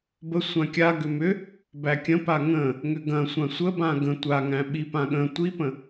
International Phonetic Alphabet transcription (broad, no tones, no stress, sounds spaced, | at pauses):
b ə sʷ ã kʲ a ɡ ʏ m ʏ | b æ kʲ ə̃ p a ŋ ə̃ | ŋ ʏ ɡ ɐ̃ sʷ ã sʷ ə b ã ɡ ə̃ tʷ a ŋ æ̃ ɓ i p ã ɠ ə̃ tʷ i p ə̃